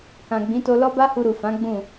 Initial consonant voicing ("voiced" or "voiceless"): voiceless